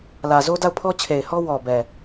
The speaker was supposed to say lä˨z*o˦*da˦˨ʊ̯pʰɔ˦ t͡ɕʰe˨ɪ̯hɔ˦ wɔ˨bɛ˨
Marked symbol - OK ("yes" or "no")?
yes